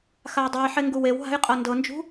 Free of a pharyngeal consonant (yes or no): no